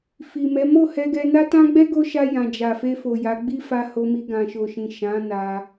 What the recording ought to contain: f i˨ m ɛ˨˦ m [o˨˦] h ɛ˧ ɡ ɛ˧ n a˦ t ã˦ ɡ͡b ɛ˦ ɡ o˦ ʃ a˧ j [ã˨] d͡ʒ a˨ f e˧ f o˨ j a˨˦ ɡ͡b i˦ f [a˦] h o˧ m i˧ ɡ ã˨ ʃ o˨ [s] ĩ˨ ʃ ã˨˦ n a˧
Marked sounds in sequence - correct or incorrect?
incorrect, correct, incorrect, incorrect

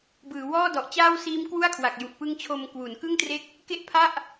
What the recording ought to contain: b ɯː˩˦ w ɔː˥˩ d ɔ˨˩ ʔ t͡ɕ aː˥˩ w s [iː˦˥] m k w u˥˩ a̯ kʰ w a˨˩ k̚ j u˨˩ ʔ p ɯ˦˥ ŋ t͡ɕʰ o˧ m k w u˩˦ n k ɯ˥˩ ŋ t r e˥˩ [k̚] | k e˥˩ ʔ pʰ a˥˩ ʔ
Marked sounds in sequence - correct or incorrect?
correct, correct

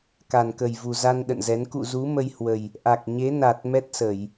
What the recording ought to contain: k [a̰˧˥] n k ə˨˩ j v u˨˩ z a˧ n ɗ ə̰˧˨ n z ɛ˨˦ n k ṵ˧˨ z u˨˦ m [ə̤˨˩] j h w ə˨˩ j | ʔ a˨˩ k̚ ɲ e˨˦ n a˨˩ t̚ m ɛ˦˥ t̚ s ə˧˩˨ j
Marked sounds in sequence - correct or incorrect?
incorrect, incorrect

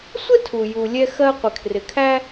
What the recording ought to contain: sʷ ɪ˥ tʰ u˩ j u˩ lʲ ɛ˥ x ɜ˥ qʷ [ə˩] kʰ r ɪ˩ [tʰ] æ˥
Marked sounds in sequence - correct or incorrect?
incorrect, incorrect

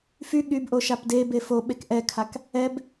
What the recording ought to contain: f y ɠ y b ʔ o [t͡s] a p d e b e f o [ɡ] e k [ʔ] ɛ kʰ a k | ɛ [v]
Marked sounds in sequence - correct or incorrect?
incorrect, incorrect, correct, incorrect

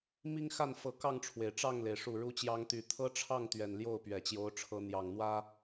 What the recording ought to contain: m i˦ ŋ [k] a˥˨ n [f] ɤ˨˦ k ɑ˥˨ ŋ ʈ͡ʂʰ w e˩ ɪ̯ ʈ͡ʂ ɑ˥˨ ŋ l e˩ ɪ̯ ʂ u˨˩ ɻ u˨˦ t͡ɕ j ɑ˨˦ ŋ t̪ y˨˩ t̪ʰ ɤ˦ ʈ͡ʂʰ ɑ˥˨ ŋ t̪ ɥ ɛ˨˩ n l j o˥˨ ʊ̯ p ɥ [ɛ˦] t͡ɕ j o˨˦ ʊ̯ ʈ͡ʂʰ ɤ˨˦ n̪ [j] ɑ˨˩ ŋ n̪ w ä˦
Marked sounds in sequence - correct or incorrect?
incorrect, correct, incorrect, correct

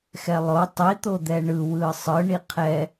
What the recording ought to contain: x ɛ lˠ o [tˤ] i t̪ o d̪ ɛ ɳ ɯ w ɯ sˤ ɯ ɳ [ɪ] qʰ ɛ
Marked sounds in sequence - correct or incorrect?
correct, incorrect

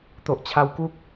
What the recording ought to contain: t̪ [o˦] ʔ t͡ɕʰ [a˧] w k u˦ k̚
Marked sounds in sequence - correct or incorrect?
incorrect, correct

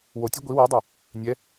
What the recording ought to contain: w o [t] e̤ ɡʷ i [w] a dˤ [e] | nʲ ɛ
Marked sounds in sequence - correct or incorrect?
incorrect, correct, correct

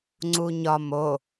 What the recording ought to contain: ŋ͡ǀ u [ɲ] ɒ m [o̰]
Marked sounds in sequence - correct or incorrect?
correct, incorrect

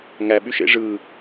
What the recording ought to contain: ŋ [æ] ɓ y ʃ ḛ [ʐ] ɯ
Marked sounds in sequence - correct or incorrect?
correct, correct

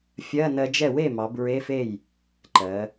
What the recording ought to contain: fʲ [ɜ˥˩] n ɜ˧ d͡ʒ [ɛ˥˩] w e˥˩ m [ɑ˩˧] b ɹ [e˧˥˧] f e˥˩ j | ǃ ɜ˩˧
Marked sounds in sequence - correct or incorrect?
incorrect, correct, correct, correct

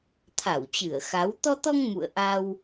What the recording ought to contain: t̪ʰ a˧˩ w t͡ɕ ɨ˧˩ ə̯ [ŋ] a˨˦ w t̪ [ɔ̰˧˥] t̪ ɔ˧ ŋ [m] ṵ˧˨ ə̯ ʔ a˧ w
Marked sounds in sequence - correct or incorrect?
incorrect, incorrect, correct

